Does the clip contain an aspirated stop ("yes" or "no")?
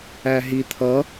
yes